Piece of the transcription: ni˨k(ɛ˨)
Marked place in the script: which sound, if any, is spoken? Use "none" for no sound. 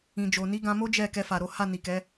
ɛ˨˦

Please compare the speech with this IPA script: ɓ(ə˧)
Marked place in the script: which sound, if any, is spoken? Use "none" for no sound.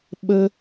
ə˧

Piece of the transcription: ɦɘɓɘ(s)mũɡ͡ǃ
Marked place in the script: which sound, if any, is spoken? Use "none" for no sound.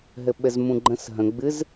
z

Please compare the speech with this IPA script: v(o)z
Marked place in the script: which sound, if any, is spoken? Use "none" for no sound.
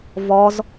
ɔ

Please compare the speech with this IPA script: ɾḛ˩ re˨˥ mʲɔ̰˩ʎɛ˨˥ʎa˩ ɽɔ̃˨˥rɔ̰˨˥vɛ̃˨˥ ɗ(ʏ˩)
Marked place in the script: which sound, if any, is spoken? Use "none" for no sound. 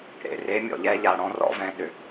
ʏ˩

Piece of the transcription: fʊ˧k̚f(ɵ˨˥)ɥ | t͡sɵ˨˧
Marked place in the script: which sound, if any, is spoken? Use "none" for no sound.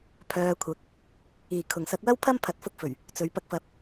ɵ˨˩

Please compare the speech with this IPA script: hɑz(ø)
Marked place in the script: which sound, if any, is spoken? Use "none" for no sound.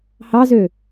ø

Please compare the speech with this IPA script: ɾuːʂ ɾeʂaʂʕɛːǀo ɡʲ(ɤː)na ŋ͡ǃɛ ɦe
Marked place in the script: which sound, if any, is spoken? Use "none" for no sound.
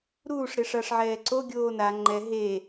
oː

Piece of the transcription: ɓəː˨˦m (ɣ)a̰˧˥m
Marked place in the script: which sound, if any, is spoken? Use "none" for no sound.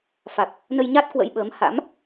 h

